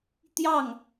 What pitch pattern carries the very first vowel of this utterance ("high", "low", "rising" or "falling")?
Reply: falling